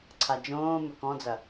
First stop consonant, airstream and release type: click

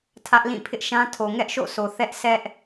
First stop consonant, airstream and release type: aspirated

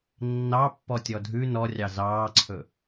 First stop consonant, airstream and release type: plain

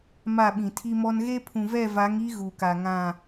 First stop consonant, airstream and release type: implosive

